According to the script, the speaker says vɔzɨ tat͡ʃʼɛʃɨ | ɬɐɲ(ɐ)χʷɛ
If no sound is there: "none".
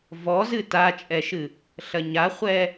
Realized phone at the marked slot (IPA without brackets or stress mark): a